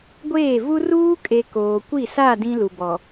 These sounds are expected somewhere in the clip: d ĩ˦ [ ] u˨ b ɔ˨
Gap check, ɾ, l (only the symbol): l